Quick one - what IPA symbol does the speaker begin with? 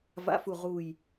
v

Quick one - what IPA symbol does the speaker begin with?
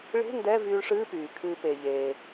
ɭ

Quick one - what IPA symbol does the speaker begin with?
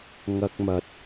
ŋ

